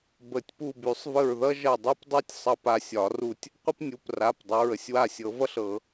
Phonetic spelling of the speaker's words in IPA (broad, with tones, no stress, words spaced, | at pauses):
bə˨˩˦tʲpu˦˨ by˨˩˦sˤvə˦˨ɹðʌ˥ʒʌ˦˨ dˤy˥pdˤy˥tʲ sˤʌ˦˨pa˦˨sʲɒ˨˩˦ru˦˨tʲ | qʷə˥pnʲu˩˧˩pra˩˧˩pdˤʌ˩˧˩ɹ ə˦˨sʲwa˦˨sʲɤ˨˩˦vʌ˥ɬ ɤ˨˩˦